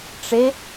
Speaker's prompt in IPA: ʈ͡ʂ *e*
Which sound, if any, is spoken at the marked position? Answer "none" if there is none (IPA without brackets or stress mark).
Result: e